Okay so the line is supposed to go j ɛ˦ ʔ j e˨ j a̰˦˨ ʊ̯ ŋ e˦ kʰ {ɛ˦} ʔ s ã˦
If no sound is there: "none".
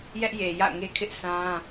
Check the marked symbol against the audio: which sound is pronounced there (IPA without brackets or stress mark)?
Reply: ɪ˦